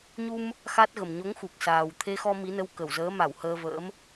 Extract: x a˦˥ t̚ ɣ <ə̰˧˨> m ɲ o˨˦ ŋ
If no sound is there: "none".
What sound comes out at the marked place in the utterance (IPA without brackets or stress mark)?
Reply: ə˨˩